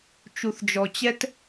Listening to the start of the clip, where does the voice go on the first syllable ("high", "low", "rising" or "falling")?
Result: low